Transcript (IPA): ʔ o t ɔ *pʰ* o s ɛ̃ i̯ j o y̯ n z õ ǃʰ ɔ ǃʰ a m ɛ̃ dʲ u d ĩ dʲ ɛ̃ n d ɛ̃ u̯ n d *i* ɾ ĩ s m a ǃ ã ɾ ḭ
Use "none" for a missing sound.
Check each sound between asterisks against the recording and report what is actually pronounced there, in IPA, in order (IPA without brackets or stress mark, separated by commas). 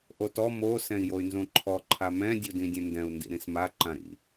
m, ḭ